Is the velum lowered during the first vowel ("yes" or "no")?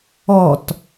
no